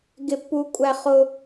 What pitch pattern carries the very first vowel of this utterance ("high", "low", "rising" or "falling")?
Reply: high